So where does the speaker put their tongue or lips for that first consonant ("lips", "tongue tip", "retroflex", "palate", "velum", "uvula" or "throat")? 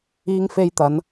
velum